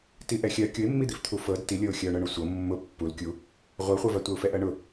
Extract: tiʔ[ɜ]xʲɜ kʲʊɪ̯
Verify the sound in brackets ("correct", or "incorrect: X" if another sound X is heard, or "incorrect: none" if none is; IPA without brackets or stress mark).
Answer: incorrect: ɛ